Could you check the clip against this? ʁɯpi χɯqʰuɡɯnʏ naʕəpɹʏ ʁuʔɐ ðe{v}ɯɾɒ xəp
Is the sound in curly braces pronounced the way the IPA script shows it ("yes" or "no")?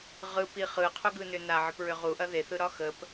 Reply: no